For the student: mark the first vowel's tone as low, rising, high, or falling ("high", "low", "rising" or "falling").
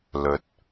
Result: rising